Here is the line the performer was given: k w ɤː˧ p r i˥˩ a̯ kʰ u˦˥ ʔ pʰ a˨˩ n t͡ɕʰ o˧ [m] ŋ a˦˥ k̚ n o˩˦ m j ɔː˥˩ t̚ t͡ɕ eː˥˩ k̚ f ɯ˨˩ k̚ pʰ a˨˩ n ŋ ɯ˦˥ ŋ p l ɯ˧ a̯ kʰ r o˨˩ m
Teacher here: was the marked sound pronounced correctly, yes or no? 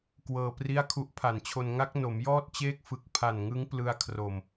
no